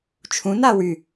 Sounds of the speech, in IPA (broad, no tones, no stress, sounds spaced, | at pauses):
t͡ʃʰ ũ n a w y